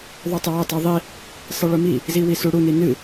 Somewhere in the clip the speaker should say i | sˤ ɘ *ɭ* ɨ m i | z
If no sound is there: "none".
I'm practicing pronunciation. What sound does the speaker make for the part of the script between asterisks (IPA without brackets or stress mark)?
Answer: ɭ